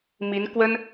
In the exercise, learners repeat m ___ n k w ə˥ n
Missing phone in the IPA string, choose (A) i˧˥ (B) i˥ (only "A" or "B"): A